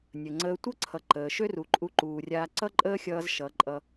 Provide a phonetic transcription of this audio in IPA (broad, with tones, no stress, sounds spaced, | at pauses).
nʲ ə˨ ŋ͡ǀ əː˧ tʷ ʌ˦ ǀʰ ʌ˨ ǃ əː˨ ʃ ø˦ r u˨ ǃʼ u˧ ǃ uː˨ rʲ aː˧ ǀ ʌ˦ ǃʼ əː˦ xʲ ʌː˧ z ʃ ʌ˨˦ ǃʼ ʌ˧